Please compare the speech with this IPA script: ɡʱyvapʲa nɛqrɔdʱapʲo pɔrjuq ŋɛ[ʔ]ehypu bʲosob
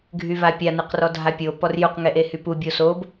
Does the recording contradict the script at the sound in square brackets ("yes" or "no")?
no